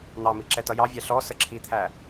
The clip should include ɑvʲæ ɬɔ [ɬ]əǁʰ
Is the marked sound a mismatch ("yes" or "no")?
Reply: yes